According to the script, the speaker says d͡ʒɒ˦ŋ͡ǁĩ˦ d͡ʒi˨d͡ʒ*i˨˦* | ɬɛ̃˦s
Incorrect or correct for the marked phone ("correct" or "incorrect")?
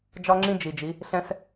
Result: correct